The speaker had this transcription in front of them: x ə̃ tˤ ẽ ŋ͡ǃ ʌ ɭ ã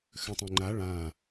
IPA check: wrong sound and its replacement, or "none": ʌ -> a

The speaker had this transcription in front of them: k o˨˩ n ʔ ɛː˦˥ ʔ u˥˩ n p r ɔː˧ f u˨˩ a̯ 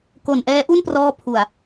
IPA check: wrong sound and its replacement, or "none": f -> pʰ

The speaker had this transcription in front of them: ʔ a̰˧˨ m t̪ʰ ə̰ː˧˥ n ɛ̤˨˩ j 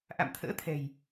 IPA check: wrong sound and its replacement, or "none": n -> t̪ʰ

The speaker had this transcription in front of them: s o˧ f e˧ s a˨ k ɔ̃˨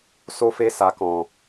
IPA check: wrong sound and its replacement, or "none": none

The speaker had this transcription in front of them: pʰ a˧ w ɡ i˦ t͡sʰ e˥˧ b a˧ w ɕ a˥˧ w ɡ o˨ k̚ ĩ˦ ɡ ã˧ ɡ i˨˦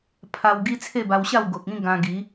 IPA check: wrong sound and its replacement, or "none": none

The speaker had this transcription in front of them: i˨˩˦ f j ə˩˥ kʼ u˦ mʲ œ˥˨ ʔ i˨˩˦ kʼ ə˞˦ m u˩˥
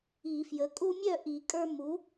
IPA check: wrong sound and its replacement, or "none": none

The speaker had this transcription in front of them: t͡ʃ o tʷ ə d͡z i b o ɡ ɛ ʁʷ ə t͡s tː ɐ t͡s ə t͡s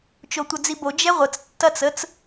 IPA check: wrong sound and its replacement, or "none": ɡ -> d͡ʒ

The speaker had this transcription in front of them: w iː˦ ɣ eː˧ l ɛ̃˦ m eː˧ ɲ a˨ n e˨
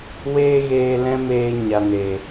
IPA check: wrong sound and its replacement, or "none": iː˦ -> eː˦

